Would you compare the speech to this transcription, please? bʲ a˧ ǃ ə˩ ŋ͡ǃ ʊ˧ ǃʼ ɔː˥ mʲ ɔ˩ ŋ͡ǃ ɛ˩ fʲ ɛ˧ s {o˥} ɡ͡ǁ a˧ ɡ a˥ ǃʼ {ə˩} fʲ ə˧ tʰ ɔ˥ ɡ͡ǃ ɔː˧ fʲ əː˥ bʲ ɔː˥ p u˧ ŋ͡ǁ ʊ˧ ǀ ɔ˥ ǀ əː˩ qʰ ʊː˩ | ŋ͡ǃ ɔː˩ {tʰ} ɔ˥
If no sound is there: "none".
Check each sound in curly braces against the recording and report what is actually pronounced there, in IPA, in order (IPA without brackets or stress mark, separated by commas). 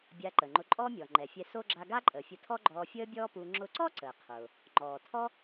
o˥, əː˩, tʰ